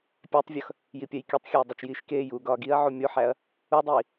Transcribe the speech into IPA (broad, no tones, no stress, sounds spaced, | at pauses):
pʲ æ tˤ vʲ ɒ x | j i pʲ æ j kʲ o tˤ xʲ oː dˤ i t͡ʃ j iː ʃ k eː j uː ɡ ɒː ɡ i ɐ̯ ʕ u mʲ o ħ æ ɐ̯ | u dˤ iː